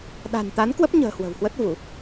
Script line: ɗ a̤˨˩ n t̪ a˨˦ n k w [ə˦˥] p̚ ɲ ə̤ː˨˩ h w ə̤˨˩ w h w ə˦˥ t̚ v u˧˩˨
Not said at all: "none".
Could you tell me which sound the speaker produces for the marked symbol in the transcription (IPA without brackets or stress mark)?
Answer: ə˦˥